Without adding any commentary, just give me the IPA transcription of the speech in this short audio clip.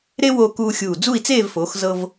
ɾ e˥ w oː˧ k uː˧ xʲ uː˧˩ d͡z u˥˧ i̯ t͡s eː˥˧ v f oː˩˧ x z ɤ˧ v

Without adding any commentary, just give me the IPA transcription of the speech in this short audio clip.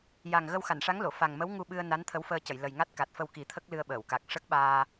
j a˨˩ ŋ ɣ ə˧ w x a˨˩˨ n ʂ a˧˥ ŋ l o˨˩˨ f a˨˩ ŋ m ə˧˥ w ŋ u˧ ɓ ɨ˧ ə̯ n a˧˥ n t̪ʰ ə˧˥ w f əː˧ c ə˨˩˨ j l ə˨˩ j ŋ a˦˥ t̚ k a˨˩ t̚ f ə˧ w k i˨˩˦ t̪ʰ ə˦˥ k̚ l ɨ˧ ə̯ ɓ əː˨˩˨ w k a˨˩ k̚ ʂ ə˦˥ k̚ ɓ aː˧

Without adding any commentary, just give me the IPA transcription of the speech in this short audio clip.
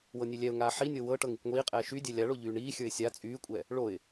w ɤ nʲ e lʲ ɛ ʊ̯ ŋ aː ħ i nʲ ɤ w ɤ ʈ ɤ ŋ i kʷ ŋʷ iː qʼ ɛː ʃ y dʲ ɛ lʲ a ɭ o ʎ yː ɳ iː xʲ ə˞ ɪ̯ sʲ a t͡sʼ yː kʷʼ ɛ | ɭ o ɪ̯

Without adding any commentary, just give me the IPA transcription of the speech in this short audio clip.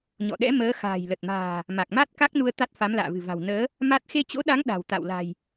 ɲ ɔ̰˧˨ ɗ ɛ̰˧˥ m əː˨˦ x a̤ː˨˩ j l ə˨˩ t̚ m a̤ː˨˩ | m a˨˩ k̚ m a˦˥ t̚ k a˦˥ k̚ n u˧ ə̯ t̪ a˦˥ t̚ f a˨˦ m l a̰ː˧˨ v ɨ̤˨˩ v a̤˨˩ w n əː˨˦ | m a˦˥ t̚ x e˧ t͡ɕ o̰˧˥ ɗ a˨˦ ŋ ɗ a̤˨˩ w t̪ a̰˧˨ w l a̤˨˩ j

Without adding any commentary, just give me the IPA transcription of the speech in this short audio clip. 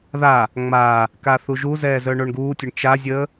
ð a | ŋ͡m a | k a θ u ʒ u z ɛː z œ ɳ o ɳ ɡ uː tʲ ə ɳ t͡ʃ a zʲ əː

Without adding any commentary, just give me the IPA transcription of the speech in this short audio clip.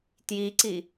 t j i ǀ i

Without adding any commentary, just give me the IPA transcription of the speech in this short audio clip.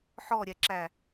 ħ ɔ ɾʲ ɛ ǁ æ

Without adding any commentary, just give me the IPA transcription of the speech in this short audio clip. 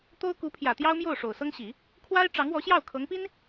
t̪ o˥ ʊ̯ k u˧˥ pʰ j ä˨˩ t̪ j ɑ˥ ʊ̯ m j o˥˩ ʊ̯ ʂ o˨˩ ʊ̯ s ɤ˥ ŋ ɕ i˨˩˦ | kʰ w a˥ ɪ̯ ʈ͡ʂ ɑ˧˥ ŋ w ɔ˧˥ ɕ j ɑ˥˩ ʊ̯ kʰ ɤ˧˥ ŋ p i˥ n

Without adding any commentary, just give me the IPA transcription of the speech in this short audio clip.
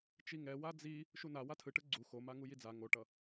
t͡ʃ i ŋ ɛ w a d͡z i | ʃ u n a w a tʰ ɯ ʈ ɯ ɡ͡ǀ u x o m a ŋ u j i d͡z a ŋ o ʈ ʌ

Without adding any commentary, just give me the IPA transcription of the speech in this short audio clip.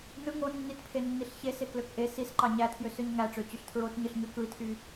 n ɯ ŋ o nː i t pʰ e nː i ɬ ç e s e k l ø k ʔ e s i s ǃ ɑ ɲ æ tʰ j ø s ø ɲ ŋ æ ʈ͡ʂ ø t͡ɕ y ɬ tʰ ɹ o t ɲ ɯ ɬ ɲ ø k ɯ i̯ tʰ y

